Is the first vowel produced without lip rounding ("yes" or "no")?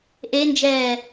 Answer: yes